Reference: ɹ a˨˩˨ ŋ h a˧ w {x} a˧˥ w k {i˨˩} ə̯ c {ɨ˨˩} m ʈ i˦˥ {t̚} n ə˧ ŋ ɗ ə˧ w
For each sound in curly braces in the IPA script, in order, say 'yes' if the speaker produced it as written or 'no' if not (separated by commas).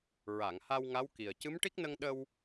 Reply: no, yes, no, no